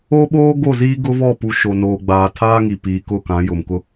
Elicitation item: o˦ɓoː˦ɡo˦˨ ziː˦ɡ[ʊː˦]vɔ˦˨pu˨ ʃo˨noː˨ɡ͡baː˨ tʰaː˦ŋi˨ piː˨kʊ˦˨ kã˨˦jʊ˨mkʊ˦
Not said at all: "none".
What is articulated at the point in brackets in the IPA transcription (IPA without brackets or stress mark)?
ʊ˦